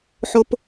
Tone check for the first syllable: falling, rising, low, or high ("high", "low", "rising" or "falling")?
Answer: low